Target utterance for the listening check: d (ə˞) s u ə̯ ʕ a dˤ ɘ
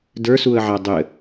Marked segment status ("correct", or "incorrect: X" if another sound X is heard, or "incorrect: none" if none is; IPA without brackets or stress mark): correct